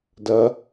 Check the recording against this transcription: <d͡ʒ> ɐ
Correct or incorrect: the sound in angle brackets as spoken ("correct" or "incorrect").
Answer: incorrect